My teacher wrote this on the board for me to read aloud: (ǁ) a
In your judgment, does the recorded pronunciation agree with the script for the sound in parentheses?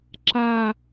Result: yes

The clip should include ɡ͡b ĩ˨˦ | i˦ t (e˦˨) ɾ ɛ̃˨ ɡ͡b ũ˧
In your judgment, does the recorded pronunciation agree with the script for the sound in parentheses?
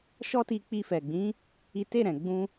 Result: yes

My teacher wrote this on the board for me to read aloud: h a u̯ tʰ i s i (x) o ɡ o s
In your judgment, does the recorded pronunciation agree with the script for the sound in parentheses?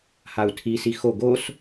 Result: yes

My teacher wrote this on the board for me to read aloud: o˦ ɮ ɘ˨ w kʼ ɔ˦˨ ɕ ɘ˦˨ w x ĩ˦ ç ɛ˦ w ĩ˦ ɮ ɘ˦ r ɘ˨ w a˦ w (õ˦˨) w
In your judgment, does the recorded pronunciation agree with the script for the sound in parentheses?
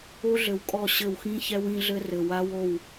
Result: no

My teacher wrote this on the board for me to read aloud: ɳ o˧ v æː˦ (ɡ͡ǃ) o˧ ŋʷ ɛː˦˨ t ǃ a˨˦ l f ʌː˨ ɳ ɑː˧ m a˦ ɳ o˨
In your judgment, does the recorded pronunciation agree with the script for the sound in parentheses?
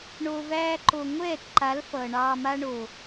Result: no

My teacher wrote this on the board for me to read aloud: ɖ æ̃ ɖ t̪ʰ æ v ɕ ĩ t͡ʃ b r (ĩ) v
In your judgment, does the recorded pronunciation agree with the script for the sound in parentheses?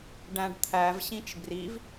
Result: no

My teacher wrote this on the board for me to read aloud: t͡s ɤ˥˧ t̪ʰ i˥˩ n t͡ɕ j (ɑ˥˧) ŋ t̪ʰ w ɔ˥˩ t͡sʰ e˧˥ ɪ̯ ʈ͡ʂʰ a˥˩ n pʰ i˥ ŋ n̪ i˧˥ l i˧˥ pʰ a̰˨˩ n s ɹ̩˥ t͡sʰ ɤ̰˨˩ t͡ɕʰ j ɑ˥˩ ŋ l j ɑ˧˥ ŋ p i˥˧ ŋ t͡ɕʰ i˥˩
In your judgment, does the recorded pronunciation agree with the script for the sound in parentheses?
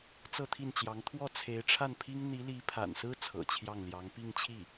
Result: no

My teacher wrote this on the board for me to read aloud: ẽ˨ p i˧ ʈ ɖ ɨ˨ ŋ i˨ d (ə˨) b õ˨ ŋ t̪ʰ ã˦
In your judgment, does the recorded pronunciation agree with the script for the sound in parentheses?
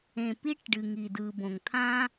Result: no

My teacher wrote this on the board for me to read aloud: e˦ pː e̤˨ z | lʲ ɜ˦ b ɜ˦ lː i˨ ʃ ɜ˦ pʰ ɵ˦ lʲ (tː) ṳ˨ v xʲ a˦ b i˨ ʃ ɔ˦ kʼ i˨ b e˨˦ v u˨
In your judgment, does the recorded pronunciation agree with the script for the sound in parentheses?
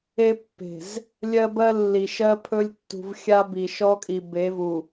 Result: yes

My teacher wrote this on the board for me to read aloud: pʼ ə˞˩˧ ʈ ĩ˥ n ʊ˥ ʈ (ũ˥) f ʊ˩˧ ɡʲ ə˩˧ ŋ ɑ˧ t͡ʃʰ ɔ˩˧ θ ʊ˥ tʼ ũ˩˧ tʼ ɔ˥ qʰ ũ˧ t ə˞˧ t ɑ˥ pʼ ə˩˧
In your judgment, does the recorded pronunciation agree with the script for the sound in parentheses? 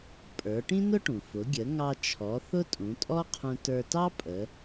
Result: no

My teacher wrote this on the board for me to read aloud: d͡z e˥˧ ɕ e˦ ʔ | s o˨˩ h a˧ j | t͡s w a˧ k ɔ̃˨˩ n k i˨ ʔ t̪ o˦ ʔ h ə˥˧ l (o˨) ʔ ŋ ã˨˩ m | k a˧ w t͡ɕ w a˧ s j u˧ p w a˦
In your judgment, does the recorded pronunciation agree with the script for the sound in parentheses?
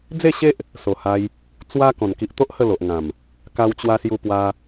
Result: yes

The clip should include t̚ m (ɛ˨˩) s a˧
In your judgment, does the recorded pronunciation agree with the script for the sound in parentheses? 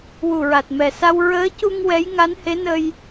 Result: yes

